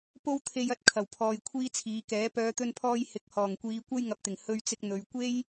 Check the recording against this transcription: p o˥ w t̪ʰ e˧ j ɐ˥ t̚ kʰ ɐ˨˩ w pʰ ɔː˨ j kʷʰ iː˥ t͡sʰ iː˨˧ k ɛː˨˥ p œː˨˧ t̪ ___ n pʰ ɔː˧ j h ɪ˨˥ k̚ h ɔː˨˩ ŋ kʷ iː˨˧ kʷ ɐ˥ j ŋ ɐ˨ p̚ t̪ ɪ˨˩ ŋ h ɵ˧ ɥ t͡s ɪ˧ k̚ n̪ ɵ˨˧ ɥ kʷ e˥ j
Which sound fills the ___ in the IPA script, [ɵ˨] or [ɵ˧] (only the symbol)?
ɵ˧